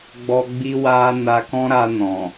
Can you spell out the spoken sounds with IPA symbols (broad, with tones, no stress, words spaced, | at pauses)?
ɡ͡bɔ˦ɡ͡bi˦ wa˦ na˧kɔ̃˦ɾa˧nɔ̃˨